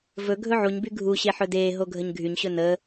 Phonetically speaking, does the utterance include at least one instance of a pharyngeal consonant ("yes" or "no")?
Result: yes